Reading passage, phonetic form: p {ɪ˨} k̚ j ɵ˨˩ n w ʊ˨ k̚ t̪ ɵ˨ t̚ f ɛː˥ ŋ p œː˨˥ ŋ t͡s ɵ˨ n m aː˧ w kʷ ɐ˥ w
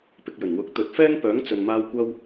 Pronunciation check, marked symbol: correct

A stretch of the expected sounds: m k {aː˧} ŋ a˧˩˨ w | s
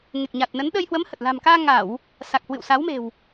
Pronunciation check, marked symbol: correct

